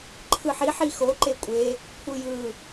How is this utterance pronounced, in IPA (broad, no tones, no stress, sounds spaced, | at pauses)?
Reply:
ǃʰ ɯ ħ i ħ i x o ǃ e kʷʼ e | kʷʰ ɯ j ɯ